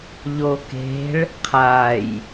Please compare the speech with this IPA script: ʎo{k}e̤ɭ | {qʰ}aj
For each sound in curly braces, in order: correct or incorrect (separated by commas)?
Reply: correct, correct